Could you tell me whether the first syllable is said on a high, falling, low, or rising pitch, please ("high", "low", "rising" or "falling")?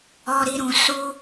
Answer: low